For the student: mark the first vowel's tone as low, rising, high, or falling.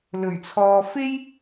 low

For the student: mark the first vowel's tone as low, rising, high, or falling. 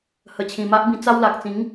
low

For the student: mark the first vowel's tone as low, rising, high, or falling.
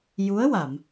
rising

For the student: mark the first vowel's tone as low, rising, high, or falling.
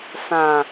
low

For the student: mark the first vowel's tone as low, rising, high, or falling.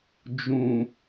low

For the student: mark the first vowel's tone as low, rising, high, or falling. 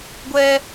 high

